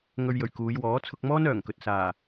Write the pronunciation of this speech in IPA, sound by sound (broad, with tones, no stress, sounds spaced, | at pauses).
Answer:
ŋ ɵ˧ ɥ j ɵ˨˩ ɥ k uː˨˧ j w ɔː˨˥ t͡sʰ ʊ˧ k̚ m ɔː˥ n œː˨˩ ŋ k ɵ˨ t̚ s aː˨˩